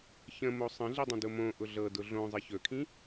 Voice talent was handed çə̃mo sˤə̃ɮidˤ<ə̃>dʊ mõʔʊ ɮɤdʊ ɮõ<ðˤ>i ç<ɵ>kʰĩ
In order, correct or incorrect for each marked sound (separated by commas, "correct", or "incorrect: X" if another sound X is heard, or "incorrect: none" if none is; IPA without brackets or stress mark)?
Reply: correct, incorrect: zˤ, correct